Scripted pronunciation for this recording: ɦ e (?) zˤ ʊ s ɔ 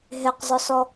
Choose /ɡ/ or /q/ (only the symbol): q